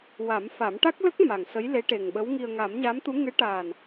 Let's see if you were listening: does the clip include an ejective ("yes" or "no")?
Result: no